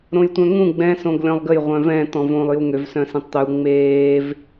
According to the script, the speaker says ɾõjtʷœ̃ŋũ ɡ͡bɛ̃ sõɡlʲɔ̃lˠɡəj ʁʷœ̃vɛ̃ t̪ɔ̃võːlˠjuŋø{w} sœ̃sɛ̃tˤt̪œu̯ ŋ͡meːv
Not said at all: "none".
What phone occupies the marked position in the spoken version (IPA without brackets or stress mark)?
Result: v